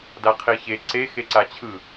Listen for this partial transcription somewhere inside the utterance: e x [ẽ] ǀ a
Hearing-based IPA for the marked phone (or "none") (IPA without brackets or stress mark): e